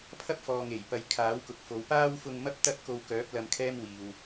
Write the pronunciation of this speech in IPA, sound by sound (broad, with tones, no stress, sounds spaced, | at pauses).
pʰ ɐ˥ p̚ f ɔː˨ ŋ e˨˩ j p ɐ˨ j kʰ aː˨˥ w k ʊ˨ k̚ f o˨˧ w p aː˥ w f ʊ˧ ŋ m ɐ˥ p̚ t̪ ɐ˥ t̚ k o˧ w k œː˨˥ p̚ l ɐ˧ m kʰ ɛː˥ m w iː˨ w